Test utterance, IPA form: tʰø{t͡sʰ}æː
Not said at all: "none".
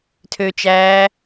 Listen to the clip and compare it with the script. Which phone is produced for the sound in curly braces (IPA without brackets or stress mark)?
t͡ʃ